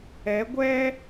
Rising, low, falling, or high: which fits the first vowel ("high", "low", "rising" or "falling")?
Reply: rising